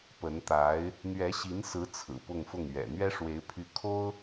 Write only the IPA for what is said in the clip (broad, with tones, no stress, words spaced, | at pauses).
pə˧˥nt̪a˧˥ɪ̯ | n̪ɥɛ˧˥ɕi˧˥nsɹ̩˧˥ t͡sʰɹ̩˨˩pʊ˥˧ŋfʊ˥˩ŋ ɥɛ̰˨˩ n̪ɥɛ˥ʂwe˧˥ɪ̯pʰy˧˥ kʰo˥ʊ̯